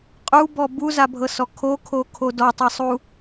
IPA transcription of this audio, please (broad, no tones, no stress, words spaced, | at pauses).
qʼubɔ buzabʱɤsɔ kʰokʰokʰo dɔtˤesˤu